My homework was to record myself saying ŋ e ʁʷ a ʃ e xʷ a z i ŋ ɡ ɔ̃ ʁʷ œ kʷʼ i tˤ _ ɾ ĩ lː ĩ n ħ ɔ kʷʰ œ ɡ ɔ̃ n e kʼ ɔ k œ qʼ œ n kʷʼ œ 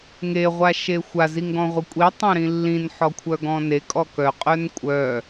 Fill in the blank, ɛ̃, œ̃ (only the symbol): œ̃